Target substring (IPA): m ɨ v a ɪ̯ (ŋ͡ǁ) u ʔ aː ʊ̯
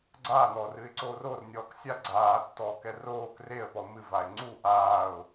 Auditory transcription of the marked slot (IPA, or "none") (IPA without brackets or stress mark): ŋ͡ǀ